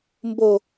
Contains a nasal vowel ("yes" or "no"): no